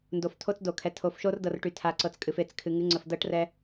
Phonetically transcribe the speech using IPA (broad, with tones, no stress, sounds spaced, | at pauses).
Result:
n d o˨ f tʰ o˦ t͡s d o˨ kʰ ɛ˨ tʰ o˨ f ʃ o˦ r d ɤ˨ r ʈ y˨ tʰ a˨˦ ǀ ɤ˨ t͡s kʼ ɨ˨ f e˨ t͡s kʰ ɨ˨ ŋ ɨ˨˦ ŋ͡ǀ ə˨ f d ɤ˦ ʈ r ɛ˦